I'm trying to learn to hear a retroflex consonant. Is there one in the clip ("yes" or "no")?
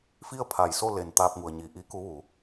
no